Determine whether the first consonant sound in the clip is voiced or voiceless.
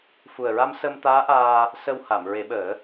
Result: voiceless